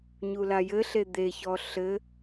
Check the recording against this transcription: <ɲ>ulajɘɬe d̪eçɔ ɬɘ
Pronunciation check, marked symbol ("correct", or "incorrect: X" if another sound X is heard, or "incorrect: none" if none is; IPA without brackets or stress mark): correct